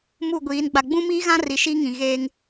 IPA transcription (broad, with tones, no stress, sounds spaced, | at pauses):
m u˦˨ ɡʷ iː˨˦ n ɡ͡b a˨ ɡ͡b ũ˦ m iː˦ ɣ ã˦ r i˨˦ ʃ i˦ ŋ ĩ˨ ɣ eː˦ ŋ